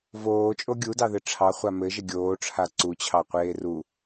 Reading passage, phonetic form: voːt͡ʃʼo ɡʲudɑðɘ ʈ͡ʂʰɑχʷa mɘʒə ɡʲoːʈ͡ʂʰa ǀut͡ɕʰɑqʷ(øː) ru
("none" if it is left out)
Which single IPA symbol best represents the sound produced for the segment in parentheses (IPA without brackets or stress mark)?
eː